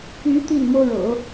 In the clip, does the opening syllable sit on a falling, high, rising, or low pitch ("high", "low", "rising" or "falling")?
rising